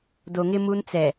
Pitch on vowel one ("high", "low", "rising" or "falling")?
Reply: low